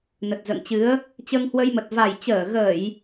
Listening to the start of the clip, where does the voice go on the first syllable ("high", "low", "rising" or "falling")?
low